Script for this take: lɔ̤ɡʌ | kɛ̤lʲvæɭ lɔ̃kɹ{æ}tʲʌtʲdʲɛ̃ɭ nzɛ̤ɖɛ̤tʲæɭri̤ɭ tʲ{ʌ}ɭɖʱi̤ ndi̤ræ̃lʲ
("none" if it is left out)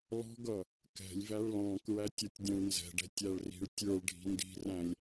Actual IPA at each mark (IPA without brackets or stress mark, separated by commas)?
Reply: æ, ə˞